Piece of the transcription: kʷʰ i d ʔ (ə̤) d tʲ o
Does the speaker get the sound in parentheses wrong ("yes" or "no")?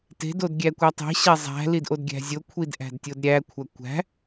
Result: yes